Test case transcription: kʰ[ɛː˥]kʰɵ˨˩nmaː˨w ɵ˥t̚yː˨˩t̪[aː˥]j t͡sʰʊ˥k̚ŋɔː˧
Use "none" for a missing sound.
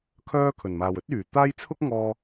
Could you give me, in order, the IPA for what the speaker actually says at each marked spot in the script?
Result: œː˥, aː˥

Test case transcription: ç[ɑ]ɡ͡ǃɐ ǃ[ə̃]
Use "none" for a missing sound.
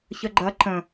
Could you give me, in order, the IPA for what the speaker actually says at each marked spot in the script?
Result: ə, ə̃

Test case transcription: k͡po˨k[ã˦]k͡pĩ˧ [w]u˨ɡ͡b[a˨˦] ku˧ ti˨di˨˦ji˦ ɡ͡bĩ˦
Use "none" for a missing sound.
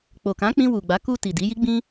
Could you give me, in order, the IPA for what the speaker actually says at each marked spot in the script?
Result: ã˨˦, w, a˨˦

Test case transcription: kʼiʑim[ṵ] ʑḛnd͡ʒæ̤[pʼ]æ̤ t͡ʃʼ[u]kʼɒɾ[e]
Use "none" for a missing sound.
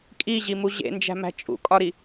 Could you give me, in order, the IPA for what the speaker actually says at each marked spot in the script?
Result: u, m, ṵ, i

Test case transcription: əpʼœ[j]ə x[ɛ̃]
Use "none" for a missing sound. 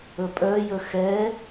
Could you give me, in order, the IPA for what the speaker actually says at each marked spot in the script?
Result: j, ɛ

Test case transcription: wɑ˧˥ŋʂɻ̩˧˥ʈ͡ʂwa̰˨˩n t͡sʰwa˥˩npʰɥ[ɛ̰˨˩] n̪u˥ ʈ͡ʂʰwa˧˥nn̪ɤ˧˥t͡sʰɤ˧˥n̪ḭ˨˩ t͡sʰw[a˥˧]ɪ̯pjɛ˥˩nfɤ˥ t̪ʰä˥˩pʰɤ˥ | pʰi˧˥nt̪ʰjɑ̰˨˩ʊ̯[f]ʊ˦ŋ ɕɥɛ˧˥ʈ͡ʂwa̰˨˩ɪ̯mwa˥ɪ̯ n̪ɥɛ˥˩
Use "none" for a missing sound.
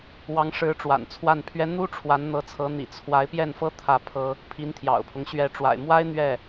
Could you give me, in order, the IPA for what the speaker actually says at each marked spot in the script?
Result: ɛ˥, a˧˥, pʰ

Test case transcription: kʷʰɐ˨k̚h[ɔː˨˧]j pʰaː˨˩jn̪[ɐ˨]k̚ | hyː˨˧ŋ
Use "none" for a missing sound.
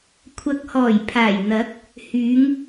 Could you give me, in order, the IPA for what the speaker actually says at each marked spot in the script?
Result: ɔː˨˩, ɐ˨˥

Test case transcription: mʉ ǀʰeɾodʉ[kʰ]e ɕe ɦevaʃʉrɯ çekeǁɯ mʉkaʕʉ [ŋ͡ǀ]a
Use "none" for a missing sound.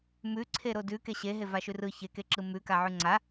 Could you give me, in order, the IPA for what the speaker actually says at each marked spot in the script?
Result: k, ŋ͡ǀ

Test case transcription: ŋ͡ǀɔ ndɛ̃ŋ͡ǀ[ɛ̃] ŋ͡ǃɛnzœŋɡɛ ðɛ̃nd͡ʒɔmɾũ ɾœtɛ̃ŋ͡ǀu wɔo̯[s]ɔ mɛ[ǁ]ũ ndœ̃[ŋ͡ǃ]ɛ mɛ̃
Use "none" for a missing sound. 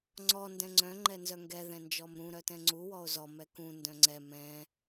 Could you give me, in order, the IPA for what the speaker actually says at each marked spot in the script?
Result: œ̃, z, k, ŋ͡ǀ

